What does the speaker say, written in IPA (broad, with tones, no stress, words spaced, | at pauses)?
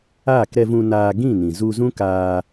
aː˦˨kɾɛ˧vũ˧ naː˧ ɡĩ˦˨nĩ˨zu˧zũ˦ kaː˧